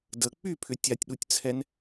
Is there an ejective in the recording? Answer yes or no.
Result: no